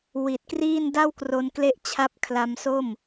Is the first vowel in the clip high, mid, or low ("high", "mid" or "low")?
high